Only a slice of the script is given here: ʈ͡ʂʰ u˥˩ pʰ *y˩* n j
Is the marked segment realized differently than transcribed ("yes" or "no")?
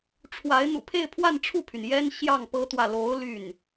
no